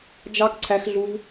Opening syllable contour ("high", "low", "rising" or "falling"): high